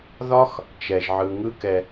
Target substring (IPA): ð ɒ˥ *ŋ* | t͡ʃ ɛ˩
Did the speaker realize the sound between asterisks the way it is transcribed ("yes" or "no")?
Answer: no